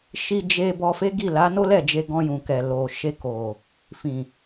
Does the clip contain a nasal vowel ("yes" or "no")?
yes